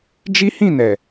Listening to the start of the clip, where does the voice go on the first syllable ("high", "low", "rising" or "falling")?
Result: high